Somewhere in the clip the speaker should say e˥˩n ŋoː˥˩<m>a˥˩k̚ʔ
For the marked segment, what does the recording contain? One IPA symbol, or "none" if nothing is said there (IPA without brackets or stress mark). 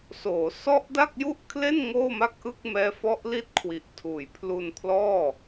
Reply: m